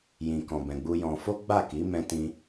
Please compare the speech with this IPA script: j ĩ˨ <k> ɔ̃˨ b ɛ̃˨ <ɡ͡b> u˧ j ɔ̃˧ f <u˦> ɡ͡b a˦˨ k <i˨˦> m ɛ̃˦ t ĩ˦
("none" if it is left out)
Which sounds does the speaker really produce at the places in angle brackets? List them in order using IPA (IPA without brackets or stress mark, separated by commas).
k, ɡ͡b, o˦, i˨˦